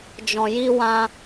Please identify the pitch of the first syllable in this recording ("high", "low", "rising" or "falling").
low